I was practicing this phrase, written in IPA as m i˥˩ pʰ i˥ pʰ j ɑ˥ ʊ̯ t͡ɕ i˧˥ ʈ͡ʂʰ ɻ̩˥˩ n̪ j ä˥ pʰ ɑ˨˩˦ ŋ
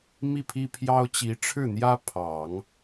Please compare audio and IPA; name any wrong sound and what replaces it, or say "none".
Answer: none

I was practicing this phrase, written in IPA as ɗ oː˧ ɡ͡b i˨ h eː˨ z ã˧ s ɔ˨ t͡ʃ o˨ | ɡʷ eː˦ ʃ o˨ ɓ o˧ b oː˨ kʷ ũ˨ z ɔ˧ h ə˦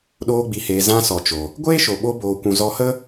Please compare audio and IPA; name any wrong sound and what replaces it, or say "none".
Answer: none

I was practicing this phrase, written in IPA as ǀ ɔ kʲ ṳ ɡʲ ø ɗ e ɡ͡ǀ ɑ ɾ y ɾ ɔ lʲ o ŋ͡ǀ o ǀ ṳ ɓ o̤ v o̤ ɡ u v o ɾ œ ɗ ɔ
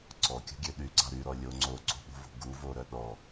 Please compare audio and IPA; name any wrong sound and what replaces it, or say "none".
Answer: e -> y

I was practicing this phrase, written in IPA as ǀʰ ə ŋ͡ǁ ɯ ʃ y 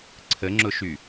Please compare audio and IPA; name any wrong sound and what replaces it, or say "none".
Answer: ɯ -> ʊ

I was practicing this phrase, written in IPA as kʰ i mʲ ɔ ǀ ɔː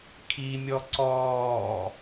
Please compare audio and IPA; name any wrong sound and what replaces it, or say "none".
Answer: none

